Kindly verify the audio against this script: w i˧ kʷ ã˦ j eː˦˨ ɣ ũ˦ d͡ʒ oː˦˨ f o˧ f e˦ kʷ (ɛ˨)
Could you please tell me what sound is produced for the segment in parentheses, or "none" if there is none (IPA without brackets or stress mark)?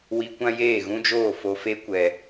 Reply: ɛ˨